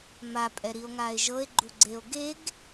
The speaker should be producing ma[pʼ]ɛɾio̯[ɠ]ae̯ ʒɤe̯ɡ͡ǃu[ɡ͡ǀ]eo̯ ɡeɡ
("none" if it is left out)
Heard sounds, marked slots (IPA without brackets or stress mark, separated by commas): pʼ, ŋ, ɡ͡ǀ